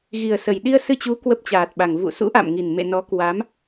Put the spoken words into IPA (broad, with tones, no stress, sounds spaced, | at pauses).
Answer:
ɣ i˨˩ ə̯ s ə˨˩ j ɗ i˧ ə̯ s ɨ˧ t͡ɕ u˨˦ k w ə˦˥ p̚ t͡ɕ aː˨˩ t̚ ɓ a˨˩ ŋ v ṵ˧˨ s ṵ˧˥ ʔ a̰˧˨ m ŋ i˨˩ n m ḛ˧˨ n ɔ˨˦ k w a˨˦ m